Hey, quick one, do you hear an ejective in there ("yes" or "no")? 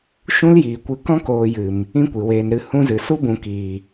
no